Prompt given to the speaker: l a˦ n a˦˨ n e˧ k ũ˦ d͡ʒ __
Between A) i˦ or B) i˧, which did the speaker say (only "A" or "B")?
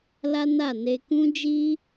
A